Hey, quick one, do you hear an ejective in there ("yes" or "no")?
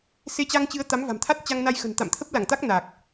no